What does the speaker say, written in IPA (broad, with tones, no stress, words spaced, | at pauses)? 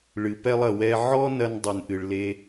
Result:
ɭɨ˩pɛ˧lˠ ɐ˩ wɛ˧ ʕɔ˥nɐ˧n dˤɨ˩nʔɨ˩ɭle˧